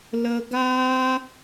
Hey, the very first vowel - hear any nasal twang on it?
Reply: no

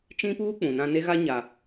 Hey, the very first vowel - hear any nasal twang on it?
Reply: yes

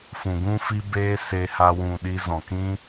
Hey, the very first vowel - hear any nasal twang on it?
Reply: yes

